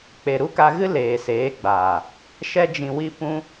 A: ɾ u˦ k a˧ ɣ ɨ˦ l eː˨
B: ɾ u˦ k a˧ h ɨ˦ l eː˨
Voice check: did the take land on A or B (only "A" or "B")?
A